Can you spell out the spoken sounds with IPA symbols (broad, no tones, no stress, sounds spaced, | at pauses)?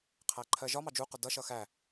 qʰ æ ǃʰ ɜ ʒ ɒ m ɑ d͡ʒ u q ʊ d ʌ ʃ ʌ x æ